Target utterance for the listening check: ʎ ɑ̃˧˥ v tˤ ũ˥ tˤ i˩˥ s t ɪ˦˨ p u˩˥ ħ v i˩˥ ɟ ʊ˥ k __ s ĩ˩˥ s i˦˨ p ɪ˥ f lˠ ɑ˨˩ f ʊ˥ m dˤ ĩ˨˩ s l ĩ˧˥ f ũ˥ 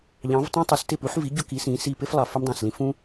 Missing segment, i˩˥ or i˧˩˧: i˩˥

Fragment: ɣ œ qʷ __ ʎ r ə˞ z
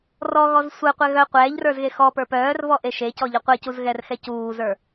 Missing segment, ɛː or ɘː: ɛː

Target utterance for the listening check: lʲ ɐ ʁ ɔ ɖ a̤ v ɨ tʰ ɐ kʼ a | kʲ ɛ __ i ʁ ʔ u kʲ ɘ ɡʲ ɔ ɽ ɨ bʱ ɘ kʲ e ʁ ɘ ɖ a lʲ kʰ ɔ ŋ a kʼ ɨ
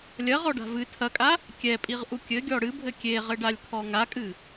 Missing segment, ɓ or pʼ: pʼ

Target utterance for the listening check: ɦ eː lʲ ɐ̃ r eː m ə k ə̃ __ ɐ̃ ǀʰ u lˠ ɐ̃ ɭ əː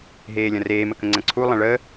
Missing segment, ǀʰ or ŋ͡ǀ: ŋ͡ǀ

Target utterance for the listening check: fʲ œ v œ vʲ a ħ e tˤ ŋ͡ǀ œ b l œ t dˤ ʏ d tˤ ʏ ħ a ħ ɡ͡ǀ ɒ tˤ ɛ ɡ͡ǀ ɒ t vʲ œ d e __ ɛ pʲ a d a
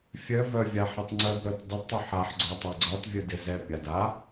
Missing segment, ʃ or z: z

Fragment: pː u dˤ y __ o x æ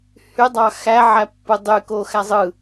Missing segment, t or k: k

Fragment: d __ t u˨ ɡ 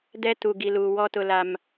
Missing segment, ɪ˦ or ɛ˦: ɛ˦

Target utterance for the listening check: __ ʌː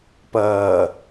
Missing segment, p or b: p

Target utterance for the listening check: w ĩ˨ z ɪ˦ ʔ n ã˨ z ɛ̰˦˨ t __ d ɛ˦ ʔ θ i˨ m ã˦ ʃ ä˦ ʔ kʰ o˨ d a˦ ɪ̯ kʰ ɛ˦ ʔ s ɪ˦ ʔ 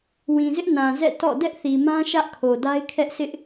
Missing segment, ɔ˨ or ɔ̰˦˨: ɔ̰˦˨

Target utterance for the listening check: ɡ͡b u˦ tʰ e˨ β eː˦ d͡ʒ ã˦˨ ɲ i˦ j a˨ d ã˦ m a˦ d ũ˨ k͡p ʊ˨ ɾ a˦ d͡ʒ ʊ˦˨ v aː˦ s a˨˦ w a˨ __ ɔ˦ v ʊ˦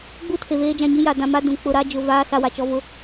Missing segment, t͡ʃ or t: t͡ʃ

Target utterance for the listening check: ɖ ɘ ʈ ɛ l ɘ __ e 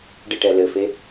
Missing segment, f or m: f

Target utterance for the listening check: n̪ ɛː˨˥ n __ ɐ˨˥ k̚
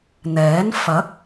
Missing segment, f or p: f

